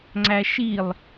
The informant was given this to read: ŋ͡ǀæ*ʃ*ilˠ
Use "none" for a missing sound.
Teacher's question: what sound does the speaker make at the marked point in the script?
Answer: ʃ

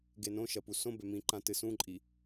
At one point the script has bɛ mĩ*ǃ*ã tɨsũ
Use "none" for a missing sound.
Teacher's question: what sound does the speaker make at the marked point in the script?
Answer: ǃ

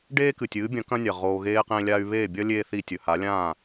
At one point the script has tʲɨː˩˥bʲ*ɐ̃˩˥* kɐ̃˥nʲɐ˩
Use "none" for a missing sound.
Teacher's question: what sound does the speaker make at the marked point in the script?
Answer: ɐ̃˩˥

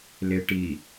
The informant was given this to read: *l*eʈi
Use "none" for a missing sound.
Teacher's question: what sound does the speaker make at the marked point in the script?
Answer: l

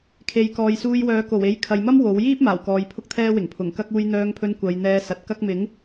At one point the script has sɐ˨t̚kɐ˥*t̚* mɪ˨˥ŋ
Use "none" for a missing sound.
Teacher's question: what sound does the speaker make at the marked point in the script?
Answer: k̚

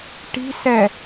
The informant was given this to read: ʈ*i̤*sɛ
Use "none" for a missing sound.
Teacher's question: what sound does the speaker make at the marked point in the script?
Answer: i̤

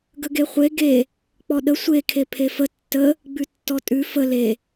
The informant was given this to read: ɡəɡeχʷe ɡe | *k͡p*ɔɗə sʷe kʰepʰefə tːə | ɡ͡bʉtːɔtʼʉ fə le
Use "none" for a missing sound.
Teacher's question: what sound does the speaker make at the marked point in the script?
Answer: k͡p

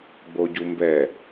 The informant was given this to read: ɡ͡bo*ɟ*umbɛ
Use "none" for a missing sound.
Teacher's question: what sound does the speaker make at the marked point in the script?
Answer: ɟ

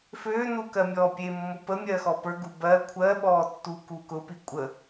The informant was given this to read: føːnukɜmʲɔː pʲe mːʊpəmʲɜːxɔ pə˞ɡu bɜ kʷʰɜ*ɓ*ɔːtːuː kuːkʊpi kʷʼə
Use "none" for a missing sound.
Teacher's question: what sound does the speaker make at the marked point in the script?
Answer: ɓ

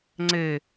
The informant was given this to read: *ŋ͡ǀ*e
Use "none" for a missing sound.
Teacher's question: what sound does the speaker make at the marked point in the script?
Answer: ŋ͡ǀ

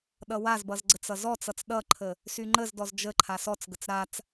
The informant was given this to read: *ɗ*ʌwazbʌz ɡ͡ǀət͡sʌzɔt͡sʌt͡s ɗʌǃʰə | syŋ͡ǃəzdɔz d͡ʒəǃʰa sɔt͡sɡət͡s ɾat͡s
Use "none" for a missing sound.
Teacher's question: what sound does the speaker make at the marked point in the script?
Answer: ɗ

